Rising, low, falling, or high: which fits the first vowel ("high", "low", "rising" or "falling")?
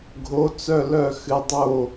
rising